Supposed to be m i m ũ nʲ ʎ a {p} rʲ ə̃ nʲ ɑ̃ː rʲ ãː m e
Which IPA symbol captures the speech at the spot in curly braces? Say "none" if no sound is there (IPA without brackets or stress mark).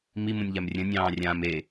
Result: m